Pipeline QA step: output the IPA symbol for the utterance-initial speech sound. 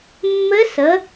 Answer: mː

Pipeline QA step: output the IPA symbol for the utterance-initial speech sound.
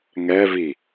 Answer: ŋ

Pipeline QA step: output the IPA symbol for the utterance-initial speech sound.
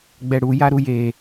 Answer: ɡ͡b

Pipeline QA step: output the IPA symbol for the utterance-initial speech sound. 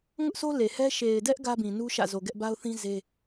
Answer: ŋ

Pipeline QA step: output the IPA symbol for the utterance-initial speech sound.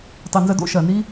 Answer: tˤ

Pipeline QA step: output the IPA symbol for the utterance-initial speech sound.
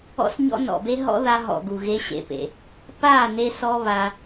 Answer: ɔ̰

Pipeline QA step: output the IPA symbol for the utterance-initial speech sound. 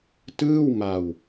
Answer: t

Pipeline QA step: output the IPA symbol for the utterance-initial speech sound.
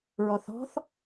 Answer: ɹ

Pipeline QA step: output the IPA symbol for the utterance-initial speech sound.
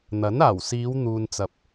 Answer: n̪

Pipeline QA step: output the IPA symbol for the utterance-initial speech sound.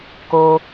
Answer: k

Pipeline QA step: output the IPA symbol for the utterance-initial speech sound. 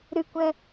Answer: ɾ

